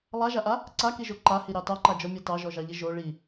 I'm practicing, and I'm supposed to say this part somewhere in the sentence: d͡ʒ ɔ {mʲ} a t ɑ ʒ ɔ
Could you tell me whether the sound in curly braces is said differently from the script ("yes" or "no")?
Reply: no